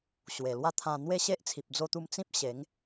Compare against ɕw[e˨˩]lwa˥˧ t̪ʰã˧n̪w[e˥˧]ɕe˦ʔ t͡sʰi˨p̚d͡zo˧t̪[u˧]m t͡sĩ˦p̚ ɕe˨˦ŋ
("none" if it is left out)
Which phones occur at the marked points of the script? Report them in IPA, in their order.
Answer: e˨˩, e˥˧, u˧

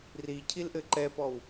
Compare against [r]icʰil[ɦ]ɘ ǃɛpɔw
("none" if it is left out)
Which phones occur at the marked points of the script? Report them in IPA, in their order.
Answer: r, ʔ

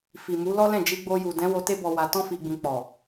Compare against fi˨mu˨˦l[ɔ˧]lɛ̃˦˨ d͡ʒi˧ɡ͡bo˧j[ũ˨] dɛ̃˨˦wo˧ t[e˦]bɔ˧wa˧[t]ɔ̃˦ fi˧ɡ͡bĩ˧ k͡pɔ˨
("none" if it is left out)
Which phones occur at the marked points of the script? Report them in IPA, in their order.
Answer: ɔ˦, u˨, e˦, t

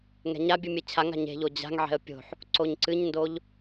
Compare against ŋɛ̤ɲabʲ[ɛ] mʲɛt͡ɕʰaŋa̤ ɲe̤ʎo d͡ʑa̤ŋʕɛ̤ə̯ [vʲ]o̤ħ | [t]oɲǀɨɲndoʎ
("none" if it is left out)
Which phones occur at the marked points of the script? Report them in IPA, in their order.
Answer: ɨ, pʲ, ǀ

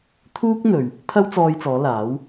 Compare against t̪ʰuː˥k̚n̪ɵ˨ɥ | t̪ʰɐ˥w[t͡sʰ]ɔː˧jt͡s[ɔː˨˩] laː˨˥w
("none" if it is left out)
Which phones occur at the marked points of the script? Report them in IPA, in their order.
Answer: t͡s, ɔː˨˧

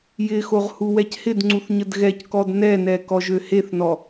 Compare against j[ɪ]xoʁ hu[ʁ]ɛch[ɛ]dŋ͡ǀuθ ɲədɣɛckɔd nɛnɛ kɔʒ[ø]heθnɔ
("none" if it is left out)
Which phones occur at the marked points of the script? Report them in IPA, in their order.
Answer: ɪ, w, ɪ, ø

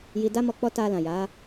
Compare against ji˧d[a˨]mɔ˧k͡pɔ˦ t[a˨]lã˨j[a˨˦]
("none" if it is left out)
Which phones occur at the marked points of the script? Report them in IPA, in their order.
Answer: a˦, a˧, a˨˦

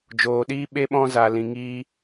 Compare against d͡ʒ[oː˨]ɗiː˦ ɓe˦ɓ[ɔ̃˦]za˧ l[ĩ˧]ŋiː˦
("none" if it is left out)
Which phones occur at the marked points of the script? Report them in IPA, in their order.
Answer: oː˧, ɔ̃˦, ĩ˧

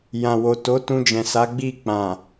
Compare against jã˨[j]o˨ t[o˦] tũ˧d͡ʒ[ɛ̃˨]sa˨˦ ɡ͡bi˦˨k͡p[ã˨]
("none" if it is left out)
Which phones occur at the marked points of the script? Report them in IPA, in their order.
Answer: w, o˨˦, ɛ̃˨, ã˨

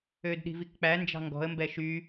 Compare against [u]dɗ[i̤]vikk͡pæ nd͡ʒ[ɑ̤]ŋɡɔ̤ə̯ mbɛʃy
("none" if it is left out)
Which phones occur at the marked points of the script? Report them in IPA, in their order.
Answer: ø, i̤, ɑ̤

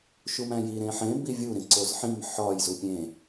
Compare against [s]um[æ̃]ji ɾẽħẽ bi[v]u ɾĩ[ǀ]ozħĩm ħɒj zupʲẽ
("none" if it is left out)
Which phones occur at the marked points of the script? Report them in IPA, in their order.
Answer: ʃ, æ̃, vʲ, ǀ

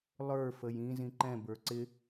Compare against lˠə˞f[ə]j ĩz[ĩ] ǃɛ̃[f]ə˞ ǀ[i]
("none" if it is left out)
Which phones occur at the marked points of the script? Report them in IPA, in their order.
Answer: ə, ĩ, b, ɪ

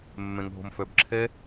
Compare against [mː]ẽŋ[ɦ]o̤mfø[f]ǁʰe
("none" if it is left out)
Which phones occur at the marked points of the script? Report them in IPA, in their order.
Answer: mː, ɦ, b

